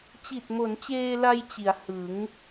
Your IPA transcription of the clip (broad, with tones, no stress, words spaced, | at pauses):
t͡ɕi˨˩t̚mo˩˦nt͡ɕeː˧la˧j t͡ɕi˩˦a̯hɯ˩˦ŋ